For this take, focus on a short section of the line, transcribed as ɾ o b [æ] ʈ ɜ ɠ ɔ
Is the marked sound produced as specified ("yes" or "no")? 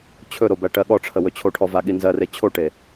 yes